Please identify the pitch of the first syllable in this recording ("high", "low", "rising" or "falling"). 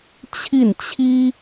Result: falling